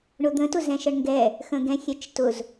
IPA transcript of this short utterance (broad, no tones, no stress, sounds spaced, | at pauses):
ɳ ʊ d̪ ə̃ t ʊ z ɛ̃ ʃ ə ɳ ŋ ɡ ɛ | x ə̃ ɡ ɛ̃ xʲ ɛ t͡ʃ t ʊ z